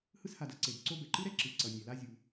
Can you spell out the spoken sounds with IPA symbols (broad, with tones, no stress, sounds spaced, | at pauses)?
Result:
h ɯ˦ s h a˨ d ʌ˦ ǀ e˩ d ǀ o˦ b ɛ˩ ǃ ɯ˦ ɾ ɛ˥ ǁ ɯ˩ ǀ ʌ˩ nʲ ɛ˩ l a˦ zʲ u˨